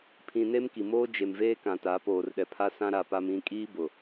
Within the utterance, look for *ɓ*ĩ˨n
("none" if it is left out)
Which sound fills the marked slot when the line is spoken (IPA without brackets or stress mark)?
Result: pʰ